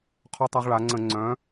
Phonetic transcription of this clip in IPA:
qʰɔ˦tˤa˦ʁ ɭa˩˧ŋ͡ǀə̃˧˩˧ ŋ͡ǀœ̃˨˥

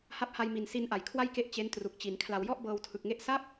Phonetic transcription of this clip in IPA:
ha˦˥p̚ha˧j mi˨˩nsi˧n ʔa˩˦jkʰwa˥˩jke˦˥ʔ t͡ɕe˦˥ntru˨˩k̚t͡ɕi˩˦n kʰla˨˩wjɔ˥˩ʔ bɤː˧wtʰɯ˨˩k̚ŋe˥˩ʔ sa˥˩p̚

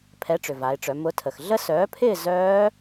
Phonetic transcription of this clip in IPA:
pʰɛ˨˥ʈ͡ʂʏ˩va˩˧ɪ̯ʈ͡ʂœ˩˧ mʊ˨˥tʰə˩x ɮə˦˥sœː˨˥pʰɪː˥˧ zœː˦˥

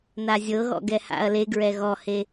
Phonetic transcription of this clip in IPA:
nazʲɤɣɔ̰ ɡɛha̰ɐ̯leɡɹɛ ɣɔhe

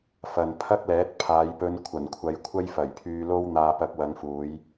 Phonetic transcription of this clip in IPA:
fɐ˨npʰɐ˥k̚lɛː˨˥t̚ pʰaː˨˧jpɵ˧n kʷʰɐ˨˩nkʷʰɐ˨˧j kʷʰɐ˥jfɐ˨˩jpʰyː˧lo˥w n̪aː˧pɐ˧k̚ wɐ˨˧ŋfuː˨˧j

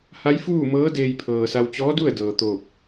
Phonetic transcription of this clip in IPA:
ha˧˥jfuː˥˨mɤː˧˥ deː˧jpʰɤː˩sa˧w t͡ɕɔː˧˥du˥˨ə̯ dɤː˩t̪oː˧˩k̚

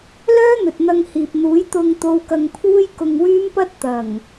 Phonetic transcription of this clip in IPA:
lœː˥n̪ɵ˨t̚ n̪ɐ˧ŋhiː˨p̚n̪uː˨˥j t̪ʊ˧ŋ t̪o˧wkɐ˧ŋpʰuː˥j kʊ˧ŋwyː˥mpɐ˥t̚ t̪ɐ˨˩ŋ

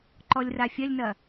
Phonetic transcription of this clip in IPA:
ǃɔlʲrafʲɐlʲnɐ

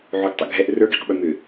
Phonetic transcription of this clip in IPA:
ʕoɡtˤḭɡʱɛʔ rə˞ɡiq ɓʏmʏ

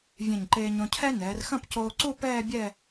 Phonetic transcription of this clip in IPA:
vʲɛ̃˧˩ɲǃeː˧ɲõ˧cʰɛ˥ nɛː˩˧rxɐ̃˥˧pcoː˧ǀu˥˧ pɛː˥˧bʲɛ˥˧

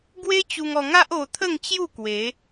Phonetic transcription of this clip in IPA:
ɡwe˦t͡ɕu˧ŋɔ˧ŋa˦ʔ o˧t̪ʰə˥˧ŋt͡ɕju˥˧ kwe˨˦

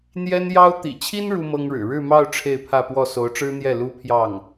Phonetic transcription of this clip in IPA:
n̪jɛ˥njɑ˥ʊ̯ t̪ḭ˨˩t͡ɕʰi˥n ɻu˥mɤ˥ŋɻɻ̩˨˩ ɻɻ̩˥˧mɑ˥˧ʊ̯ ʈ͡ʂʰe˥˧ɪ̯pʰä˥˧pwɔ˥˩ so˧˥ʊ̯ʈ͡ʂɻ̩˥n̪jɛ˥˩ lu˥pʰjɑ˥˩ŋ

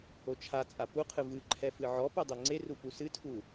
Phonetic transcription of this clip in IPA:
ot͡ʃʰat͡sʼa puqʰɨ vɨǃʰɛ fɨʕɔpu dˤeŋ͡ǀeru pusɨtʰu

